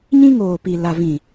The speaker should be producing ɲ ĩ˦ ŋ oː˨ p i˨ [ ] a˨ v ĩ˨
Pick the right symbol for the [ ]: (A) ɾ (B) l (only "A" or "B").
B